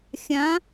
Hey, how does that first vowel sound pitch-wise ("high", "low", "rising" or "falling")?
rising